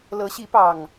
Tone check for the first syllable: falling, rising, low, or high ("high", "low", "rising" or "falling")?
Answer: rising